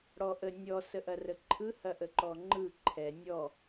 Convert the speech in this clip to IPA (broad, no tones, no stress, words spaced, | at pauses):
ɽɔʔə nʲɔ səʔɐrəǃʰɯ hɐʔəǃɔŋ͡ǃɯ ǃʰɛ nʲɔ